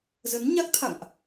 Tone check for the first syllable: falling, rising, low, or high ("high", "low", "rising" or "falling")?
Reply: rising